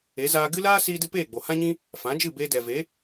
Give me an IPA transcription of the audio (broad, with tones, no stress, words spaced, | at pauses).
e˨˦zaː˧ ɡɨ˦laː˦siː˧dɨ˧ peː˦˨ɡ͡bo˨hã˦ɲĩ˦ | fã˨˦d͡ʒɨ˦˨beː˧ dɛ˨ve˨˦